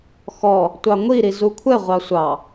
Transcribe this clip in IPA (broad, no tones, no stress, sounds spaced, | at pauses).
x ɔ | tʷ ɑ ŋʷ i ɾ i z u kʷʰ ɛ ʁʷ ɑ sʷ ɑ